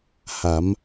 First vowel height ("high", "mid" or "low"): low